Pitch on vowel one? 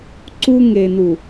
high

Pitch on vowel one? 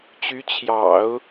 rising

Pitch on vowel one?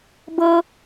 high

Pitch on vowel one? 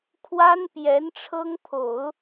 high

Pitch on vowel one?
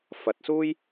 rising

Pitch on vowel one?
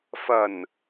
low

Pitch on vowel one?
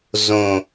low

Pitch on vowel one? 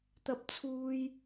high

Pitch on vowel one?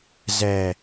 low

